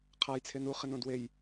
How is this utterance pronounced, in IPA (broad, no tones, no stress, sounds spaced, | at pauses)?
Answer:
qʰ a j t͡sʰ e n u χ ɪ n õ d w e j